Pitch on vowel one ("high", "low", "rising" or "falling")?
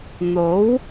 rising